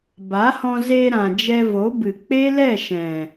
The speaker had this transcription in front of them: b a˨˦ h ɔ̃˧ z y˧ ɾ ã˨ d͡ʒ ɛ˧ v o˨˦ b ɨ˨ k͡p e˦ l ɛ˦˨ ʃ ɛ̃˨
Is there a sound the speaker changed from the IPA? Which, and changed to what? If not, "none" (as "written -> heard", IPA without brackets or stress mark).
y˧ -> e˧